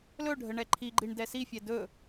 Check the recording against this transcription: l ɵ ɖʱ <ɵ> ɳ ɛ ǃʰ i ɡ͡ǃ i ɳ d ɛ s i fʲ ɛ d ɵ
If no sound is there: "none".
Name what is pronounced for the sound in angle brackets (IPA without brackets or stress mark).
ə